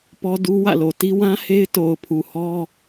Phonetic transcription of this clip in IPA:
pɔ˦ du˦ wä̰˦˨lo˨ ti˦ wã˦ he˦ɪ̯to˨ʊ̯pʰu˨hɔ˦

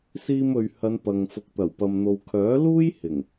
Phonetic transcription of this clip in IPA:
siː˧mɵ˨ɥhɐ˨˧n pɐ˨ŋ fʊ˨k̚t̪ɐ˨˩wpɐ˨m n̪o˨wkʰœː˨˥luː˥j hɪ˨˩ŋ

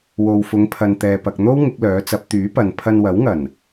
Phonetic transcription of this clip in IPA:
wo˨wfʊ˨˧ŋ pʰɐ˨nt̪ɛː˨pɐ˨k̚ n̪o˥w ŋɪ˨˥k̚lœː˨˥t͡sɐ˨˥p̚ t̪yː˨˥pɐ˨n pʰɐ˧nwɐ˨˥wŋɐ˨˩n

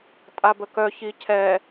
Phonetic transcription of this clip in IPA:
tʼabəkœ çicʰɛ

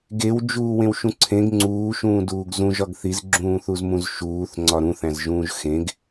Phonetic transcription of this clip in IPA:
ɡewd͡ʒuːwẽwʃũ ǀʰẽɡ ŋ͡ǀuːʃũːduːɡ zũʒɒɡ θizɡ͡ǁũːθuzmũz ʃuːθŋ͡ǀɒ ɾũθæ̃zʒũːʒ xẽɡ

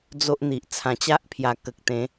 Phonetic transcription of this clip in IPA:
d͡zo˦ʔn̪i˨ʔ t͡sʰã˨˩t͡ɕa˦ʔpʰja˨˩ kə˨k̚t̪ẽ˨˦

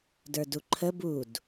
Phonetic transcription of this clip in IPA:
də˞duǃʰə bud

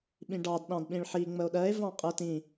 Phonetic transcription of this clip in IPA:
ɓĩɖɑd ɗɑ̃dɓĩɭħi ŋ͡məo̯ɗɜe̯ vɑ̃qʼə tĩ

